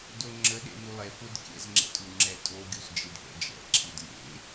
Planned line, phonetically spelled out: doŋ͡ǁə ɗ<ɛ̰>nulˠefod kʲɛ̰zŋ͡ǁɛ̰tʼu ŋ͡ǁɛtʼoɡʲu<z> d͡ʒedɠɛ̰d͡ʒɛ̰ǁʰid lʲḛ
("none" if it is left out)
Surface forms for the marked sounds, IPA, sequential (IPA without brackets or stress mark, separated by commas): ḛ, z